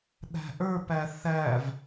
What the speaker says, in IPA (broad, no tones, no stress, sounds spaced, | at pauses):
ɗ æ̤ ʔ ə˞ p æ θ æ v